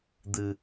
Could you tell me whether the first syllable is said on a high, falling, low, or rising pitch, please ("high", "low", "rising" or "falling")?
low